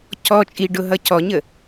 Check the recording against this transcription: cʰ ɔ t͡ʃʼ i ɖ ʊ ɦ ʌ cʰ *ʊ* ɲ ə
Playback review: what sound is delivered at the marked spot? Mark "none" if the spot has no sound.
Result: ɔ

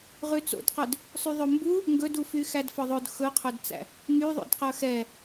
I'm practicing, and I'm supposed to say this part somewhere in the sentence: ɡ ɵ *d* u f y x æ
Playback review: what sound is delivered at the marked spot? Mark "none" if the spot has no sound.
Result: d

